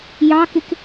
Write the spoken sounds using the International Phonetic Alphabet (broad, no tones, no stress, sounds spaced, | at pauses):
j ɑ k ɪ k